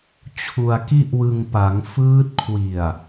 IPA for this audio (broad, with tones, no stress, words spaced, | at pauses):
t͡ɕʰu˧a̯ki˥˩ʔwɯ˧ŋpa˩˦ŋ fɯː˦˥t̚ kʰwi˨˩a̯